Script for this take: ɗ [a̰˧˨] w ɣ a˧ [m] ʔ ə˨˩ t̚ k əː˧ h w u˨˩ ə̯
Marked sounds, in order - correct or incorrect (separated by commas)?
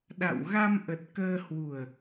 correct, correct